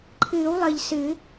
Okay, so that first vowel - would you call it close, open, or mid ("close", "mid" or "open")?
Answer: close